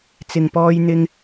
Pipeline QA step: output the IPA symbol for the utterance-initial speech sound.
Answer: t͡s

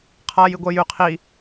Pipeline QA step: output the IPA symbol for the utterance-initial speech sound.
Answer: qʰ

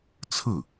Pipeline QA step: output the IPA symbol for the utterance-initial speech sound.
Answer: t͡sʰ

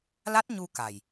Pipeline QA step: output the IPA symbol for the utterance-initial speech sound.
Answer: l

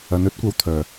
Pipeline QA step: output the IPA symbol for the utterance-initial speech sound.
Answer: ɐ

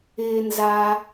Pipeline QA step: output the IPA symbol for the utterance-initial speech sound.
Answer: ɪː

